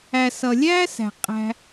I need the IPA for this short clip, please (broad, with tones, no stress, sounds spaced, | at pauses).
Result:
æ˨ s ʌ˨ lʲ æ˦ s æ̤˨ qʼ æ̤˧